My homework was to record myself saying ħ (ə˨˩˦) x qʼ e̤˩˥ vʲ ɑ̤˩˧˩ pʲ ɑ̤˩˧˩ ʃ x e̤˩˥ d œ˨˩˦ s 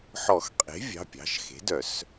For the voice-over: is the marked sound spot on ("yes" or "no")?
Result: no